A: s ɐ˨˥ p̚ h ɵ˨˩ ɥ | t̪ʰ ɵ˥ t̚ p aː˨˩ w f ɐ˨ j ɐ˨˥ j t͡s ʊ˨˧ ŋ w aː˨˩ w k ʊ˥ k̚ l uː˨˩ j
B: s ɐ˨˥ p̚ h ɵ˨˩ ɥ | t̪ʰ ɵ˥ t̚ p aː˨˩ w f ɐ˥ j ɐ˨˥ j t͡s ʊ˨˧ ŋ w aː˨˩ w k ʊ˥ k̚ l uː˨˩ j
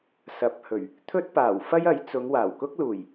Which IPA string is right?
B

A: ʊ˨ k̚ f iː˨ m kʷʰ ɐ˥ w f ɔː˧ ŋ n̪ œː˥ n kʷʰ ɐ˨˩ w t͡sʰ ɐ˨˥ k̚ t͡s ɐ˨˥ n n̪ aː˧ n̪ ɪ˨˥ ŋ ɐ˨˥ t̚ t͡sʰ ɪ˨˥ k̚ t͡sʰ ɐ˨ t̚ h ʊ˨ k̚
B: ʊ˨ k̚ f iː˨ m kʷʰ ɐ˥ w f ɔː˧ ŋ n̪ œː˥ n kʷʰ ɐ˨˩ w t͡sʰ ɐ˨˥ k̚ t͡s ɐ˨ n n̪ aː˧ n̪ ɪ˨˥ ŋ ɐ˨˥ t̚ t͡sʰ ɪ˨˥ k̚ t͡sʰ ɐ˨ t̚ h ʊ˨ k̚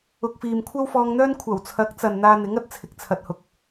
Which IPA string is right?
B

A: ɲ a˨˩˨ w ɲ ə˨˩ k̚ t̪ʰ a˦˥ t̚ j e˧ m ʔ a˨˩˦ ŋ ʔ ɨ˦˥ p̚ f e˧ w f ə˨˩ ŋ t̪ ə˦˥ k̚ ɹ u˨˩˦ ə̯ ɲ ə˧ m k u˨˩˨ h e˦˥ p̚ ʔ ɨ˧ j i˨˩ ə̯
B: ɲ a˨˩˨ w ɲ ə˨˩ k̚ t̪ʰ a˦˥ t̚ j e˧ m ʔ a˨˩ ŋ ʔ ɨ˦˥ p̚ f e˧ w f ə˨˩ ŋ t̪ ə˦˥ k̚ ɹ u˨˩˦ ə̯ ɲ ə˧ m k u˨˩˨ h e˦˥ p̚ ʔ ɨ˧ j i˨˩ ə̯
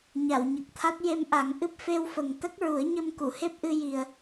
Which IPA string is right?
A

